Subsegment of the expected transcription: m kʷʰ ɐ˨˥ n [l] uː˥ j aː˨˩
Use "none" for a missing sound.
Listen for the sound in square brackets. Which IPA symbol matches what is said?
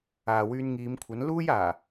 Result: l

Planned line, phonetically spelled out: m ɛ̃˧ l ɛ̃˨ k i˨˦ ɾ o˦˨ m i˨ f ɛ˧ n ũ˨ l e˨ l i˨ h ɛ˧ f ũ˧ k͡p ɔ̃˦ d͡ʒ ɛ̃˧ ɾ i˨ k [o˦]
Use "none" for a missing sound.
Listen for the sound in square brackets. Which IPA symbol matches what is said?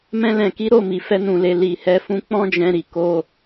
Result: o˧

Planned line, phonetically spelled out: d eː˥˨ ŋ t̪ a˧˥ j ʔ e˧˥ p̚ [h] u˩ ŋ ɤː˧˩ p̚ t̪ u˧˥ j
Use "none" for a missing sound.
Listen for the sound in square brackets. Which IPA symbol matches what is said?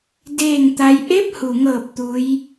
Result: h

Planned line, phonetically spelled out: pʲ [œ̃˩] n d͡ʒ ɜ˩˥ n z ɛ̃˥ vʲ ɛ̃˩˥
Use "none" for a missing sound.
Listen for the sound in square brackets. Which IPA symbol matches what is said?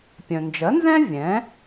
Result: œ̃˩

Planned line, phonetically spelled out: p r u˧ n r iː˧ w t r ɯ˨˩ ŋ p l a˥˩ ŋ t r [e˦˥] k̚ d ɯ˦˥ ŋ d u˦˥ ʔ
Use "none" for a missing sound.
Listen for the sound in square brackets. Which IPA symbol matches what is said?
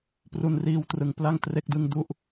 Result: e˦˥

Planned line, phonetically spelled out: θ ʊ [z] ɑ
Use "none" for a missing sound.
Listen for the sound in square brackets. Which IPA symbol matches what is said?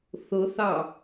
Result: θ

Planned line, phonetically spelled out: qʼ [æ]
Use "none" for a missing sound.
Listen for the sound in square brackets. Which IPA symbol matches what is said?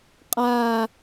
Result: a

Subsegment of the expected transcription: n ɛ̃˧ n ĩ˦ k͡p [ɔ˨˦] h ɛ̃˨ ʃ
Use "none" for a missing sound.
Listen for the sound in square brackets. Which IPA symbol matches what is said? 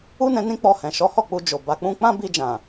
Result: ɔ˧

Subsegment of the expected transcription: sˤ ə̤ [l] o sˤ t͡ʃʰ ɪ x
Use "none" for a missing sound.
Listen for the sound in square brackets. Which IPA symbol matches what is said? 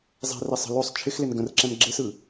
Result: l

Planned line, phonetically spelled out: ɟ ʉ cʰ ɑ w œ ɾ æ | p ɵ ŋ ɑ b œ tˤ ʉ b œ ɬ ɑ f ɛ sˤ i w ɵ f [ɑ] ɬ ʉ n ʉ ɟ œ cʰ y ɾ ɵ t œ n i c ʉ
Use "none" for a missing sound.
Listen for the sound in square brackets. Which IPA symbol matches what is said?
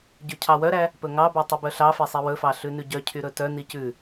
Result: ɑ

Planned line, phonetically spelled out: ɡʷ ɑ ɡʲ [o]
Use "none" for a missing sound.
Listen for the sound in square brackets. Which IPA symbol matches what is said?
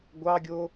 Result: o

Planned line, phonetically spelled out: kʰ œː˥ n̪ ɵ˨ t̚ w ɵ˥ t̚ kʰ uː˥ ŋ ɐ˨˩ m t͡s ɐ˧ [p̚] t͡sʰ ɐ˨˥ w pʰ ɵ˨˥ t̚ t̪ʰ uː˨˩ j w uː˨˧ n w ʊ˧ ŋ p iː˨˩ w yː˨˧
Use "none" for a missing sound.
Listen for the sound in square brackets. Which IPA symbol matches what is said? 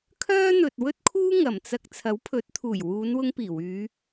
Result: k̚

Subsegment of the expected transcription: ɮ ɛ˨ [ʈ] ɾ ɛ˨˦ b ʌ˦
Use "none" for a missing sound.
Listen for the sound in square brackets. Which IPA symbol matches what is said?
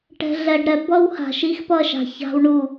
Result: ɖ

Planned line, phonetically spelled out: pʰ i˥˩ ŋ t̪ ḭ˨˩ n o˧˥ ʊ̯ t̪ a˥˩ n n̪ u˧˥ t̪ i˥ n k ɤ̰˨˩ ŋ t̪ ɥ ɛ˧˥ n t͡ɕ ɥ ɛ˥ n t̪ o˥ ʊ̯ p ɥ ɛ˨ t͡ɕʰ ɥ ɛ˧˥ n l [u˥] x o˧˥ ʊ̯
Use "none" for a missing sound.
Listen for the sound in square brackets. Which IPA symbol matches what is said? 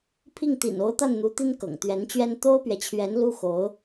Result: u˥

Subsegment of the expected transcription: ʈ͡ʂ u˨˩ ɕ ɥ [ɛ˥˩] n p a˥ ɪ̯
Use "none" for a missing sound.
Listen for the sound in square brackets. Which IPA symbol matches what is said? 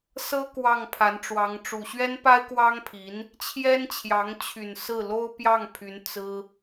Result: ɛ˥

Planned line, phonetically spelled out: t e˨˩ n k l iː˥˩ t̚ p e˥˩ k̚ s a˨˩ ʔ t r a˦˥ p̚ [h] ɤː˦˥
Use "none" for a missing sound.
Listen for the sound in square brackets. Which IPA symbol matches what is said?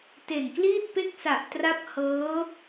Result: h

